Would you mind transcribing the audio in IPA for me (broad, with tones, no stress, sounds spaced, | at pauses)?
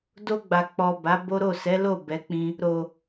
d o˧ ɡ͡b a˨ k͡p ɔ˨ b a˨˦ b o˦ ɾ o˦˨ s ɛ˨˦ l o˦˨ b ɛ˨˦ k͡p ĩ˧ | ɾ o˨